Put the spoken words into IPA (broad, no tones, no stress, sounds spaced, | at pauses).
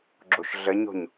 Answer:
ɡ͡ǁ o ʃ ɮ ə ɲ o̤ ɲ